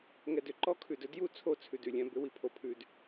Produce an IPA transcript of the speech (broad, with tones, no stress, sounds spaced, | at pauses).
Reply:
ŋ ɛ˨ d ʏ˨ ǃ ɔ˦ kʰ ʉ˨ d ɵ˦ d j u˦˨ t͡sʰ o˦˨ t͡sʰ ʉ˨ d ʉ˨ lʲ ɛ̃˦ b ʏ˨˦ w i˨ pʰ o˨ pʰ ʉ˨ d